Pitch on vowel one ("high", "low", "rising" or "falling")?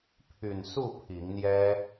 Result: low